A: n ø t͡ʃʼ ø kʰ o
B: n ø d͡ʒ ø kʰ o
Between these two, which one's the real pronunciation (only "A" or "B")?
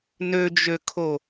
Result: B